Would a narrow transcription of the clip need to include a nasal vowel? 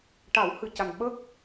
no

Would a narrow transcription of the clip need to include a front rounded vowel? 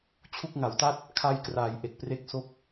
no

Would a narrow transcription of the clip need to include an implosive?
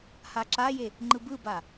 no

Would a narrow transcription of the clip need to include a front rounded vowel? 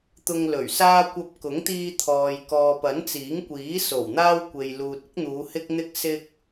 no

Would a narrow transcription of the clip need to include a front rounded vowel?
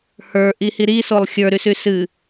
yes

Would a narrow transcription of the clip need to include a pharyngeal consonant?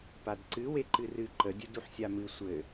yes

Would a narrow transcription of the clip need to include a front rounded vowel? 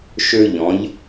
yes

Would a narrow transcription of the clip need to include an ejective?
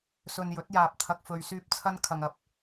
no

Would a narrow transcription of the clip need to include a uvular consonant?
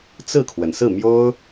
no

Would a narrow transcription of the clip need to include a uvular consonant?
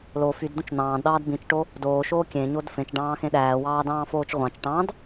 yes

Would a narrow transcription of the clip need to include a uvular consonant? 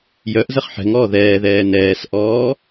yes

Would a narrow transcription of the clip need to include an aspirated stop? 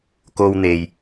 no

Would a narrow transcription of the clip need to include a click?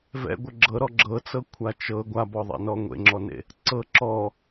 yes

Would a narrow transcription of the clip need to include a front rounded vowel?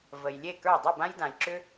yes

